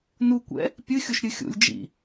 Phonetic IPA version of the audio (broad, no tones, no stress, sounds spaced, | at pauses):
n u kʷ ɛ̰ | pʲ ɨ xʲ u ʃ ɾʲ ɨ xʲ ṵ lʲ d͡ʒ ḭ